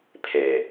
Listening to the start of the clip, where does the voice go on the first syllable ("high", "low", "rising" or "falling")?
low